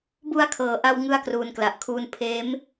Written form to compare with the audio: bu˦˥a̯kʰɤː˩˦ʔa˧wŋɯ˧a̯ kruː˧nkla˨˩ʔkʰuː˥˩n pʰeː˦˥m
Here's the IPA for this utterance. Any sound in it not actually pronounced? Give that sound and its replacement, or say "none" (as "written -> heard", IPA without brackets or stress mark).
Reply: none